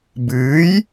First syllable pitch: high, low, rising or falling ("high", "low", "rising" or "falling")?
rising